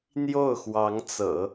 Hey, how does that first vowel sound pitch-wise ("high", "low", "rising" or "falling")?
falling